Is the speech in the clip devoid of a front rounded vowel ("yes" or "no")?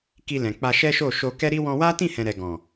yes